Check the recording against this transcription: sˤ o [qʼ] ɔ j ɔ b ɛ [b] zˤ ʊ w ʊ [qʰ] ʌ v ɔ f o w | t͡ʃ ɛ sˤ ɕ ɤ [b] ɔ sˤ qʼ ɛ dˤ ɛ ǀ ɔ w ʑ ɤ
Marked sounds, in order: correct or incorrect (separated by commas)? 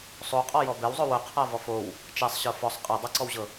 correct, incorrect, correct, incorrect